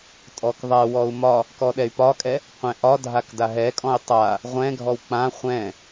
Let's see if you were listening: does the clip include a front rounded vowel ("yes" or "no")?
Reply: yes